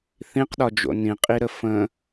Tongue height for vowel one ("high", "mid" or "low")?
high